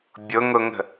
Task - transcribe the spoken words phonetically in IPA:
bʲ ʊ ŋ ʊ ŋ ə̤

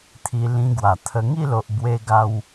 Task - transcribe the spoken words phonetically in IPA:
t̪ʰ i˧ l ĩ˧ ɡ w a˨˩ t̪ʰ ə˧ ŋ i˥˧ l o˨ ʔ b w e˧ ɡ a˧ w

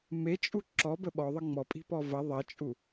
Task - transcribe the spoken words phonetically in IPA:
m e t͡ʃʼ u ǁ ɔ b ə ɓ ɔ ðˤ ə ŋ͡m ɔ pʼ i̤ p ɔ v ɐ ðˤ ɐ t͡ʃʼ u

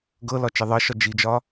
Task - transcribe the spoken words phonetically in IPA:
ɡ ɤ l ɒ t͡ʃ e ðˤ ɤ ʃ ɒ d͡ʒ i d͡ʒ ɒ

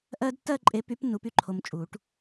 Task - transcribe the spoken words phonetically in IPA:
ʔ ɜ˥ d tː ɜ˥˧ ǃʼ e˨˥ p y˨˥ p nː u˨˥ p y˥˧ ǃʰ o˧ m t͡ʃʼ u˨˩˦ ʈ

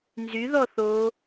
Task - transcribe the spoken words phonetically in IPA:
n z y ð ɔ θ o

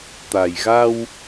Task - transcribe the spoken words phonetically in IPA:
t̪ a˨˩ j ɣ a˧ w

